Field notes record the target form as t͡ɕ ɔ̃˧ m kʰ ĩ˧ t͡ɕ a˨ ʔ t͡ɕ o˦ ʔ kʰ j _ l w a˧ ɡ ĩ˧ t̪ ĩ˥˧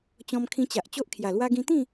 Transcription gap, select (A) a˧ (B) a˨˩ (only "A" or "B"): B